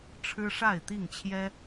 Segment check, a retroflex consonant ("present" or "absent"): present